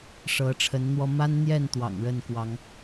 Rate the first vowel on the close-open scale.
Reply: mid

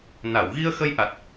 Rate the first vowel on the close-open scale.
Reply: open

